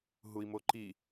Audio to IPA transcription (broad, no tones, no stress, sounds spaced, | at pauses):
ɦ u i̯ m o ǃ i